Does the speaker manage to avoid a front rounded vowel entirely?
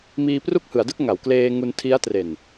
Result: yes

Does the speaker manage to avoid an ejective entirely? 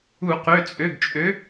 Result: no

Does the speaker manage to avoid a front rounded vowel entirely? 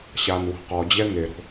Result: yes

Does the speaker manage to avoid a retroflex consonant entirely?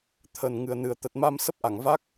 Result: yes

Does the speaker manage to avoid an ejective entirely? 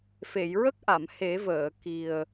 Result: yes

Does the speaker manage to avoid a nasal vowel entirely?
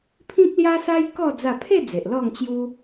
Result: no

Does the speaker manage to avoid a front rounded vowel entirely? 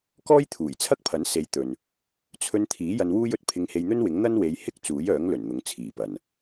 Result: no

